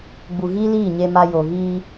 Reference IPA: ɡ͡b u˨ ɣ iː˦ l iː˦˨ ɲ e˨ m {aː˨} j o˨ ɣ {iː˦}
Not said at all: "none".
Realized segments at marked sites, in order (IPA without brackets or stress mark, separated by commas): a˨, iː˦